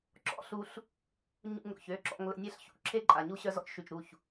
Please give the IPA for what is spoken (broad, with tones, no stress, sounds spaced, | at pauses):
ǁ ɔ̰˦ ɬ u˧ ɬ | ɲ ṵ˧ ŋ ɾ o̰˨ ç ø˧ ǁ ɔ̰˧ ŋ l ə̰˨ nʲ ɛ˧ ɬ ç ṵ˦˨ ǁʰ e˦ ǃʼ a˨ ɲ u˦ ɕ œ˧ z ɔ̰˦ t͡ʃ ʃ y˨ t͡ʃ ɾ u˦˨ ç